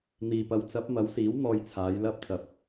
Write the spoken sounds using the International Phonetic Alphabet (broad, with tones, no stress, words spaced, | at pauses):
n̪iː˨pɐ˨˧w t͡sɐ˨˥p̚mɐ˨˧wsiː˨˥w n̪ɔː˧jt͡sʰaː˨˧j lɐ˧p̚t͡sɐ˨˥p̚